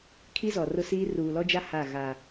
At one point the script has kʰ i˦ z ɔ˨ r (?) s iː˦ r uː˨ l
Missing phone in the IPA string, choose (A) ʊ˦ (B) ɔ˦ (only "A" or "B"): A